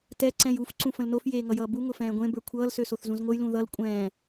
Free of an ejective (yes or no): no